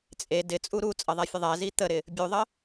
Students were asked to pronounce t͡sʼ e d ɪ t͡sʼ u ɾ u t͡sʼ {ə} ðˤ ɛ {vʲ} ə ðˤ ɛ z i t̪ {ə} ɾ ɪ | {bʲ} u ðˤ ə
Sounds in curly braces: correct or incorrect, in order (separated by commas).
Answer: correct, incorrect, correct, correct